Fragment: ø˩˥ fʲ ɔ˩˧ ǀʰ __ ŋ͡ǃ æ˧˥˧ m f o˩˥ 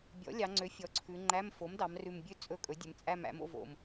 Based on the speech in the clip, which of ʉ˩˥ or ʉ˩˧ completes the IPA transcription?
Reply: ʉ˩˧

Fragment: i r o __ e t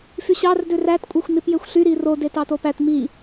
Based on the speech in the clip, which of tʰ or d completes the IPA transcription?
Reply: d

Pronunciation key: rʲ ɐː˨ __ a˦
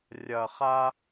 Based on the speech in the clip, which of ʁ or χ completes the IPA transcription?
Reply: χ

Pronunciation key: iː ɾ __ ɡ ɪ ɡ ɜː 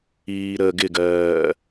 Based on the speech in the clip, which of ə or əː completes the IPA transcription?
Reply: əː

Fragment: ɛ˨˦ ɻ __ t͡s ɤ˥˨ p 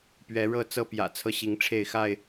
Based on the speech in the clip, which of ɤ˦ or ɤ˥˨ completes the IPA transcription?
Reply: ɤ˥˨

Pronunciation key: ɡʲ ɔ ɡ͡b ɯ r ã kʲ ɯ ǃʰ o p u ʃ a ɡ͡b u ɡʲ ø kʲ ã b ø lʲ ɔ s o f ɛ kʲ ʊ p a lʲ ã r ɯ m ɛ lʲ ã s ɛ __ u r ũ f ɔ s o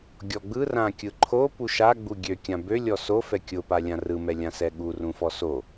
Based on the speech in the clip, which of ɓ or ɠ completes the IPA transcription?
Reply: ɠ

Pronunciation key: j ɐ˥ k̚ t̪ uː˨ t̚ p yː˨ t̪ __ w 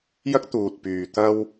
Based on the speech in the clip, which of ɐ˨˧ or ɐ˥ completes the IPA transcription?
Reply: ɐ˥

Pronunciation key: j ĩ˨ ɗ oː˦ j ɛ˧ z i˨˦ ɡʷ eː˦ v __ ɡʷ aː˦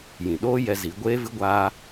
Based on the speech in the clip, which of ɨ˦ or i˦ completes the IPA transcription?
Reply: ɨ˦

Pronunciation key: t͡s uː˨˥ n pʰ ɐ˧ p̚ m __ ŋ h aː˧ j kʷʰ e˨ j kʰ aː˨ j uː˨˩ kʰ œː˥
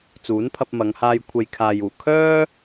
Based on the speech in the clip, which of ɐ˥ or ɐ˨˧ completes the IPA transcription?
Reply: ɐ˨˧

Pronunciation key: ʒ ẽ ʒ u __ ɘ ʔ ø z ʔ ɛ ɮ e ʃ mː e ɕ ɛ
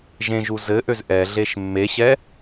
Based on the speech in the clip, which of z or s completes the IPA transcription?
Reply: z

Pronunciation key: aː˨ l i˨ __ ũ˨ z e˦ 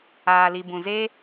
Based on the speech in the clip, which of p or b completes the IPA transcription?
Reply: b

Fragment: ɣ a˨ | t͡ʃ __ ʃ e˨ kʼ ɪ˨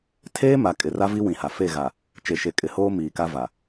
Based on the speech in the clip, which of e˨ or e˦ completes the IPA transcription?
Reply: e˨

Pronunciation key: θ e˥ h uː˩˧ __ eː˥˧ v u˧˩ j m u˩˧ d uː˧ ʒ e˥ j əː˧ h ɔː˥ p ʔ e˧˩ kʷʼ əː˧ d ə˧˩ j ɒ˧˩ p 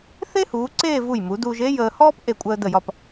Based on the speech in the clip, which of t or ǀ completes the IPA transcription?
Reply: ǀ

